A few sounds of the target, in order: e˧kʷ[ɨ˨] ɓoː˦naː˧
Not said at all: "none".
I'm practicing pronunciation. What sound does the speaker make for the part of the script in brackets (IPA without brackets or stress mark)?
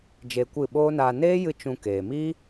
ɨ˦˨